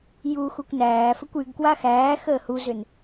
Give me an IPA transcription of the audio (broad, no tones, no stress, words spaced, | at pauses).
juxukʷ næːfɘkʷ yɡ kwaxæːxəː huzʏn